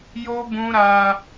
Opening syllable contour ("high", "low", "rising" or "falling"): high